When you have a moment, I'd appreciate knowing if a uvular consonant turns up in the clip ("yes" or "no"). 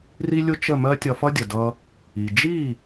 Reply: no